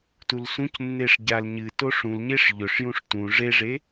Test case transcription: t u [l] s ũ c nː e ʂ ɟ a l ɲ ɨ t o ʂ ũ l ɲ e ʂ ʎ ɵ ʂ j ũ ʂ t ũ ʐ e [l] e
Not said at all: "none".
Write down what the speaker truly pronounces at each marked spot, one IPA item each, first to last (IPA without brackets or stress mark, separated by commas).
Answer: l, ʐ